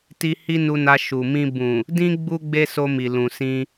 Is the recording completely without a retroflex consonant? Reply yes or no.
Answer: yes